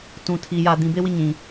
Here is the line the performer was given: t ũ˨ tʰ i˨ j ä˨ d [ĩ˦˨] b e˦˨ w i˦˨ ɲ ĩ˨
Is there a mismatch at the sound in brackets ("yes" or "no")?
yes